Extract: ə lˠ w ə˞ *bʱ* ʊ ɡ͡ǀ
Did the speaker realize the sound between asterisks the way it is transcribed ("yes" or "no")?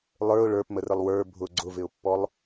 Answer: yes